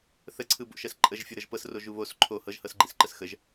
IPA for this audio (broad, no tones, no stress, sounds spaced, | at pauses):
θ ə ǀʰ ɯ b o̰ ʃ ɜ s ǃʼ ə ʒ fʲ o ɾ ɤ ʒ p ɤ s r o ʒ u β o s ǃʰ o h ɤ ʒ h ɤ s ɡ͡ǃ i s ǃ ə s x ə ʒ